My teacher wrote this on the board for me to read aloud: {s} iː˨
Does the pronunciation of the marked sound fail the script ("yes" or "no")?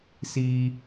no